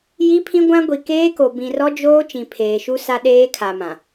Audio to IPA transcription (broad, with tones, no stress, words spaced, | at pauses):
ji˦pʰĩ˦ɡʷã˦ ɡʷi˨keː˦ko˨ bĩ˨rɔ˦ d͡ʒoː˦ t͡ʃĩ˨pʰeː˨ʃu˦ sa˦ɗeː˦kʰa˨mã˨